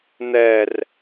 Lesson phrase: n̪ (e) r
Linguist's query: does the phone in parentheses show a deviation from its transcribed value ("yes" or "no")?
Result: yes